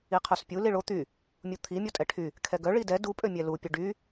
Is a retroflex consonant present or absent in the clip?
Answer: present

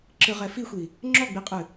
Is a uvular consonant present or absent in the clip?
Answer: present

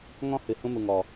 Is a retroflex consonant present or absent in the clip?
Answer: absent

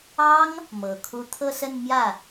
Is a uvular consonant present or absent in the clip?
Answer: absent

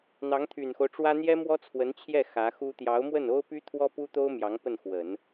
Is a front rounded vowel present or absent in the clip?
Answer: present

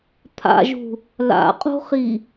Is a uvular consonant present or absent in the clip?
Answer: present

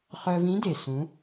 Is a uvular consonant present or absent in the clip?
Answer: present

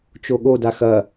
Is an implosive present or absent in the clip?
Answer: present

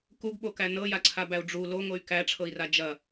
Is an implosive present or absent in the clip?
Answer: present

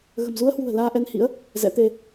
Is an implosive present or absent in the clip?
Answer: absent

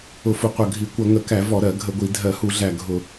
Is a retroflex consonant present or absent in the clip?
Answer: absent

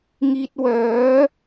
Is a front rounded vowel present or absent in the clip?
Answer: present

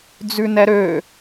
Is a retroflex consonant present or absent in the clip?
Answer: absent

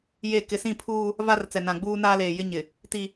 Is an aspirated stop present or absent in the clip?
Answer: present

